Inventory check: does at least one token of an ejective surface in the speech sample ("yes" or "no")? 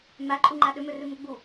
yes